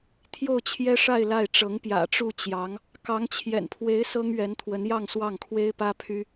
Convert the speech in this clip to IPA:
t̪ʰ j o˥˩ ʊ̯ t͡ɕʰ j ɛ˥ ʂ a˥˧ ɪ̯ l a˥˩ ɪ̯ ʈ͡ʂ ɤ˧˥ ŋ p j ä̰˨˩ ʈ͡ʂ u˥˩ t͡ɕ j ɑ˧˥ ŋ | k ɑ˧˥ ŋ t͡ɕʰ j ɛ̰˨˩ n pʰ w e˧˥ ɪ̯ s ɤ˥ ŋ ɥ ɛ˧˥ n t̪ʰ w ə˧˥ n j ɑ˥˧ ŋ s w ɑ˥˩ ŋ kʰ w e˥ ɪ̯ p ä˥ pʰ y˥

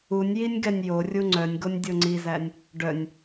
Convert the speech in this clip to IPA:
u nʲ j i nʲ ɡ ɛ nʲ j o rʲ u ŋ͡ǀ œ nʲ ɡ o nʲ dʲ o ŋ͡ǀ i z æ nʲ | ɖ œ nʲ

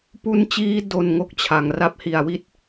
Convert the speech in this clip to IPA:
p u˦˥ n t͡ɕ iː˦˥ d o˧ n ŋ o˥˩ k̚ t͡ɕʰ a˩˦ ŋ r a˦˥ p̚ h i˨˩ a̯ w i˥˩ t̚

